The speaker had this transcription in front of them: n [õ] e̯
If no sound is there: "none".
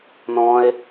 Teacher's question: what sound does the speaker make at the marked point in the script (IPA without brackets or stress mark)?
ɔ̃